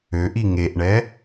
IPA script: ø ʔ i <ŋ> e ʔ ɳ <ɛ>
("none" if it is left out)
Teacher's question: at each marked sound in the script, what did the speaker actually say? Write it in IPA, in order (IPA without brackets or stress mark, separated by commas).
ŋ, ɛ